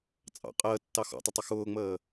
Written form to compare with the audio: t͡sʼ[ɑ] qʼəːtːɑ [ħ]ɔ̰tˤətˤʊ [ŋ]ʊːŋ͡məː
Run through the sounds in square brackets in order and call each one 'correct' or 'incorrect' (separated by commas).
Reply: incorrect, incorrect, incorrect